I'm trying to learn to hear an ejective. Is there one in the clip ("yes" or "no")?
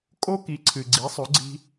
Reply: yes